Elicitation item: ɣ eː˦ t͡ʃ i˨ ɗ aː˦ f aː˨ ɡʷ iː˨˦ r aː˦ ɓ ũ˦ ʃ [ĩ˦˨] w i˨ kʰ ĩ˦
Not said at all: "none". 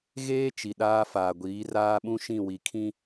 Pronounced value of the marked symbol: ĩ˦˨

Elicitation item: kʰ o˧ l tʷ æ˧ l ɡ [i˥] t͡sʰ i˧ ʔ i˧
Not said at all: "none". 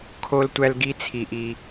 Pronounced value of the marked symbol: i˥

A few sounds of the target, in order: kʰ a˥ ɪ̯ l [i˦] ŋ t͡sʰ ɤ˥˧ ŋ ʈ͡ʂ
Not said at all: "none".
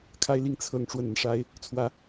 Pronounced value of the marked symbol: i˥˧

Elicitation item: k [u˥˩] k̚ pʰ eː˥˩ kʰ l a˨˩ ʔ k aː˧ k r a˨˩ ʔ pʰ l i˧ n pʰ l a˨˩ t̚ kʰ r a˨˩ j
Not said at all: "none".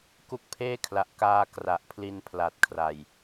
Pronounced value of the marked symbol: u˥˩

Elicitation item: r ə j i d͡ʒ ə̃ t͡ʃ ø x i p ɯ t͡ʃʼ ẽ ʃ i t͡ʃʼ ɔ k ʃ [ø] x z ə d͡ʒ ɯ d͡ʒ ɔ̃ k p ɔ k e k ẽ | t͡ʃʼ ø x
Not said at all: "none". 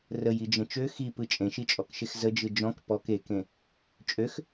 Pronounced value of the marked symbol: e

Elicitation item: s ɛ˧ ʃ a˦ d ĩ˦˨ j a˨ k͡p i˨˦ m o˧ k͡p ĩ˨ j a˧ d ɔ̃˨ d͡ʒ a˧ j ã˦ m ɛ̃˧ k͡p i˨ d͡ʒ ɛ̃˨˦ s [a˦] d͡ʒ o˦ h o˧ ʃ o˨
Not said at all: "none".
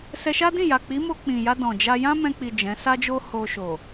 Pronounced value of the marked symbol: a˦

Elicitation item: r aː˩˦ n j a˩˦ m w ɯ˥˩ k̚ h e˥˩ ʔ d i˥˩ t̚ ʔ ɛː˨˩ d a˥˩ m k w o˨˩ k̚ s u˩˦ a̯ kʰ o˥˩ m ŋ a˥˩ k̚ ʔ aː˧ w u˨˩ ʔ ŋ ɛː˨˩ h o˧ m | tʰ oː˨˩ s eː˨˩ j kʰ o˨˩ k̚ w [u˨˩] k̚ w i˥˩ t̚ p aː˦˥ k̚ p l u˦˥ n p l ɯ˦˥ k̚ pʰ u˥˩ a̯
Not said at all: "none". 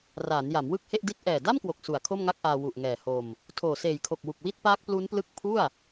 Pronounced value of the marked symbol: u˨˩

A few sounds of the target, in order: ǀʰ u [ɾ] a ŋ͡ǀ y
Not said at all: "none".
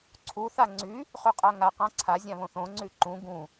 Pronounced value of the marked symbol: θ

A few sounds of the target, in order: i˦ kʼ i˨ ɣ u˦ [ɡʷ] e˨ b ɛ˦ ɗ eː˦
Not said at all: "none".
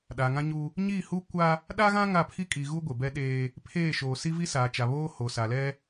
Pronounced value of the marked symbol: ɡʷ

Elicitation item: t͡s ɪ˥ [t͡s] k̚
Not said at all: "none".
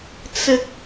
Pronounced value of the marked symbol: none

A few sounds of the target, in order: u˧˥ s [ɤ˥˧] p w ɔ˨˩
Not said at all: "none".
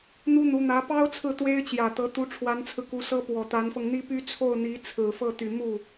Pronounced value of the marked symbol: ɤ˥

